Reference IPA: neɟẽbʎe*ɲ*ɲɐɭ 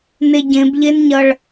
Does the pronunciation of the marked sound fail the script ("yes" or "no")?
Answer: yes